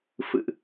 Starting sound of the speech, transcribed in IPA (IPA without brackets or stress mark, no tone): f